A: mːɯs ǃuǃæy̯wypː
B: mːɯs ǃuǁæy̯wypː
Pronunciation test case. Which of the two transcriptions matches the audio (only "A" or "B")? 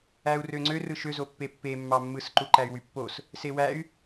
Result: A